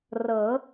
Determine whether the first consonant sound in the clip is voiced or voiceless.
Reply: voiced